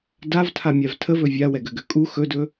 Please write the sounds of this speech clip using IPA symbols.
d a v tʰ a mʲ a v tʰ ə v ɵ vʲ a w ɛ ɡ ø ɡ ø kʼ u x ɵ d ɵ

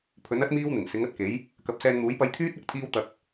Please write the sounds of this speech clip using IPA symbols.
pʰ ɵ˨˥ n ɐ˥ t̚ m iː˥ w n̪ ɪ˨˩ ŋ s ɪ˨˥ ŋ ɐ˧ t̚ k e˨˥ j | k ɐ˨˥ p̚ s ɛː˧ n n̪ uː˨˥ j p ɐ˧ j t̪ʰ yː˥ t̚ ɐ˨˥ k̚ t̪ʰ iː˧ w t̪ ɐ˨ k̚

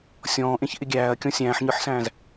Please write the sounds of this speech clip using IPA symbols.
sʲ ɔ̃ː ʔ ẽ ç ʔ ɪ ɡʲ æː ɐ̯ kʲ ɔ̃ sʲ æ̃ː ħ ɲ ə˞ ħ s æ̃ː z

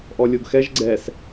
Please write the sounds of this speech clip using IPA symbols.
ʔ ɔ lʲ o ɡ x ɛ ʒ ɡ͡ǀ ɛ s

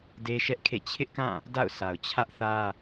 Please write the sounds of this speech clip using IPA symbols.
d e˦ ʃ ɛ˦ ʔ kʰ ḛ˦˨ t͡ɕʰ ɪ˦ ʔ k ã˦˨ | d a̰˦˨ ʊ̯ sʰ a˨ ʊ̯ t͡ɕʰ ä˦ ʔ θ ä˦

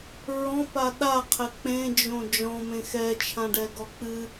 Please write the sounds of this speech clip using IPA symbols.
ɹ ɔ̃ p a ɗ a qʰ ɛ k͡p ẽ d͡ʒ õ d͡ʒ ɔ̃ m ẽ x ɛ t͡ʃʰ ã ɖ ɛ ɡ ɔ k͡p ɨ

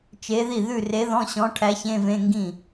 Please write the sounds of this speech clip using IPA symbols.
t͡ʃ e˧˥ ð i˥˩ ð ʉ˥˩ r e˧˥ ð ɔ̃˧˥˧ ɕ ɔ̃˧˥ ʈʰ æ˧˥ ç ẽ˧˥˧ v ẽ˧˥˧ ŋ ɡ ĩ˥˩

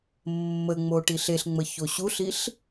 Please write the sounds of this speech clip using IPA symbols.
mː ə ŋ͡m o ʈ i ɬ e ɬ ŋ͡m ə ç o ɕ u ɬ i ɬ

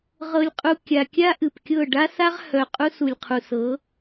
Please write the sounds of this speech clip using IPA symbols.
ʁ ɤ˨ lʲ qʼ u˨ kʲ a˨ kʲ a˦ ʔ ɨ˨ p kʲ ɤ˦˨ ɖ a˦ s a˦ ʁ h œ˨ qʼ u˦ s u˨ lʲ qʰ u˨ s ɤ˨˦

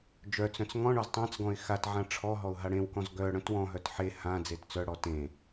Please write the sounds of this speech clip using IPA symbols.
d͡ʒ œ t͡s œ̃ t͡s ŋ ɔ̃ ɳ ɔ z tˤ ã t͡s ɡ ɔ̃ ɪ̯ x a t ʕ ã ʈ͡ʂʰ ɔ ɦ ɔ ʊ̯ ɦ a ɽ ẽ w k ɔ̃ z ɡ œ ɽ œ̃ t w ɔ̃ ɦ œ t ħ e h ã d͡z e t t͡s œ ɽ ɔ t ẽ

